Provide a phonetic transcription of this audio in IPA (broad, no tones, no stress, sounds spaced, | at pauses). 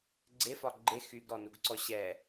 ɡ͡ǀ e f ɒ ɡ͡ǃ e x y ɡ ɾ ɔ n u ɡ ǀ ɔ ɕ ɛ